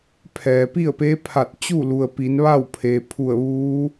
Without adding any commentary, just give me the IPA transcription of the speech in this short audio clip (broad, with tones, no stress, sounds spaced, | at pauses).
pʰ ɛː˩ p i˥˨ ə̯ p eː˧˥ pʰ a˧˩ t̚ t͡ɕ u˥˨ l u˩ ə̯ p i˩˧ n ʋ a˥˨ w pʰ eː˩ pʰ u˧˩ ə̯ ʋ uː˧˥